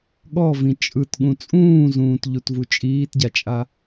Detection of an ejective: present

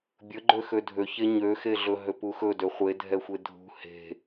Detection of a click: present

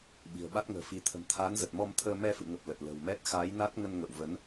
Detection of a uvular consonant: absent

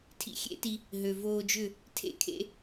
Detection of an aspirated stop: present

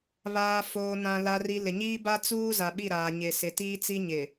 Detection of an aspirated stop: absent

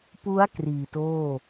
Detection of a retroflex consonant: absent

